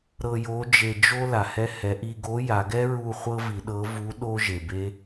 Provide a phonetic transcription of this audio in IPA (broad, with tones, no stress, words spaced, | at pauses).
ɾɤ˧jo˧˥ d͡ʒe˧d͡ʒo˥ la˩hɛ˧hɛ˩˧ʔi˧ ɡo˧˥ja˩˧ɡɛ˥ɹu˧ χʷɤ˥vi˩˧ɗɤ˧˥vu˧˥ ɗo˥ʒe˩be˥